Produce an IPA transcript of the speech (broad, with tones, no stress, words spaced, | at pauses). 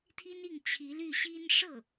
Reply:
t̪ʰi˥ni˥˩ŋ t͡ɕʰi˧˥ly˥˩ɕi˥n ʂɤ˥˩